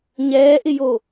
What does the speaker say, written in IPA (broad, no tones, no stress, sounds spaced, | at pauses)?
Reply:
ɲ ɛː ʔ ɪ j o